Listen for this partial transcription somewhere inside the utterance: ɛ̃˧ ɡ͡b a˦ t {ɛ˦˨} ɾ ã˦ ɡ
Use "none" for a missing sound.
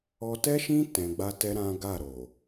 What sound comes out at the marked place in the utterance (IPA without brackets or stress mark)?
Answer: ɛ˦